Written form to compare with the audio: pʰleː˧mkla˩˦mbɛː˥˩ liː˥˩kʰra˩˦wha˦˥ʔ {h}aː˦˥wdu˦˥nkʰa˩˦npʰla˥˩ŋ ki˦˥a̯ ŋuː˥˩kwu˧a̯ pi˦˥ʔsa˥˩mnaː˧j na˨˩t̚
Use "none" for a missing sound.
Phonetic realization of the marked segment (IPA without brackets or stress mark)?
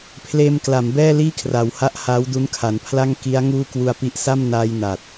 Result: h